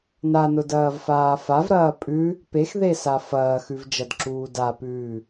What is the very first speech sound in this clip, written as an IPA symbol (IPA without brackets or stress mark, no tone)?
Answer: n